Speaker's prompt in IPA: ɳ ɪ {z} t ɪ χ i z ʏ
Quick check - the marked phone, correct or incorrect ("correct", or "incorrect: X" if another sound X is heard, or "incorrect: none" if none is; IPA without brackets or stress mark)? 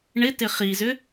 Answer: incorrect: none